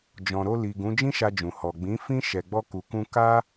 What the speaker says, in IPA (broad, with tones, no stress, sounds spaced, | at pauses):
d͡ʒ ɔ̃˨ ɾ o˧ l i˨ ɡ ũ˨˦ d͡ʒ ĩ˦ ʃ a˧ d͡ʒ ũ˨ h ɔ˨ ɡ͡b ĩ˨˦ f ĩ˦ ʃ ɛ˧ ɡ͡b ɔ˦ k u˧ k ũ˦ k a˦